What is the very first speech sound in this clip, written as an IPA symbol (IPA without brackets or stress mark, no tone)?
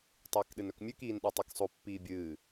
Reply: tˤ